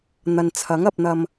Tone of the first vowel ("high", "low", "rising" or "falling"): low